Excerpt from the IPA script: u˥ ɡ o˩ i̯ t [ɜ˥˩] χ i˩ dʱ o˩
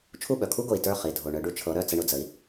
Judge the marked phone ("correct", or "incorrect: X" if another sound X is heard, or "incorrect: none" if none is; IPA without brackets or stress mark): incorrect: ə˞˥˩